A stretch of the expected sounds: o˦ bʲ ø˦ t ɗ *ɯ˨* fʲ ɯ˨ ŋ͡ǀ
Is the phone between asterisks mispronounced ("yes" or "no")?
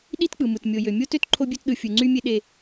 no